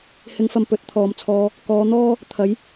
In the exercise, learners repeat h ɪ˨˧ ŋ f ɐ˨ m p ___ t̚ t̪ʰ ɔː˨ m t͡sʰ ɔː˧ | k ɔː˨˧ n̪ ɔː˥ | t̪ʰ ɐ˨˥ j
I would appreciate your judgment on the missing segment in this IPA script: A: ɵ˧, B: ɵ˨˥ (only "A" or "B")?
B